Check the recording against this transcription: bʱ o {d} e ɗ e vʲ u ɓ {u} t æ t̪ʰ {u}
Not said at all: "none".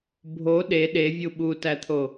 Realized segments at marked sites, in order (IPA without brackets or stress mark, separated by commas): ɗ, u, o